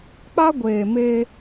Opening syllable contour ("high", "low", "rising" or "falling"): high